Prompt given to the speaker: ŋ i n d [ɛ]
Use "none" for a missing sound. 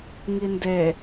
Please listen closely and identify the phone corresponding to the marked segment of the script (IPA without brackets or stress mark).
e